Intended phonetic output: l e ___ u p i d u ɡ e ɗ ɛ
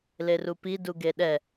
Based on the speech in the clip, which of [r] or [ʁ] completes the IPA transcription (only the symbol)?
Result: r